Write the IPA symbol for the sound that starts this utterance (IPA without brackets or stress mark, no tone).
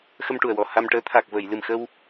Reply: x